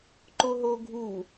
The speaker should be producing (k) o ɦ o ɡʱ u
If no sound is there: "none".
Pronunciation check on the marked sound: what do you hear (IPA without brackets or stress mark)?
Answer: ǃ